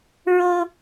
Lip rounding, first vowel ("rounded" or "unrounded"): rounded